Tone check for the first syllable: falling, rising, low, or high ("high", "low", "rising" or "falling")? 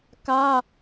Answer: high